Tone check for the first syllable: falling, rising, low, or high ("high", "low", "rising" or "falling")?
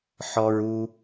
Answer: high